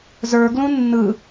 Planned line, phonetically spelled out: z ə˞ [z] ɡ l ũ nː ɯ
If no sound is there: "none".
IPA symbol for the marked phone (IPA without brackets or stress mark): none